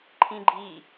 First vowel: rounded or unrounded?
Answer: unrounded